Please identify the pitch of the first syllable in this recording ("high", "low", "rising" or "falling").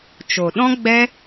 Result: low